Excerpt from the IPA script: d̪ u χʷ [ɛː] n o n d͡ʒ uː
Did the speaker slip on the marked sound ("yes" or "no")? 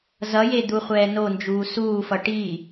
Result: no